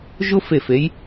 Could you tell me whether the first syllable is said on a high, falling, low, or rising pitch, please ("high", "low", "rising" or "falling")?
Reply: high